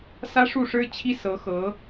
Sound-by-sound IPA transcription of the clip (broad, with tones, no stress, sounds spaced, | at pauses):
s ä˥ ʂ u˥˩ ʂ ɻ̩˥ t͡ɕʰ i˥ s ɤ˧˥ x ɤ˧˥